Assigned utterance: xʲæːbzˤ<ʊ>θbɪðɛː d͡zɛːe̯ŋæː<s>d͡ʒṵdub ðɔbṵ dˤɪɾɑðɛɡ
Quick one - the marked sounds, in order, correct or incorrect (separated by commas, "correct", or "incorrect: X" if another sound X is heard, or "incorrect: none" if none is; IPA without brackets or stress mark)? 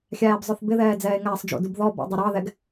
correct, incorrect: sˤ